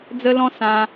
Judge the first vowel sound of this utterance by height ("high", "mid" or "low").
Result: mid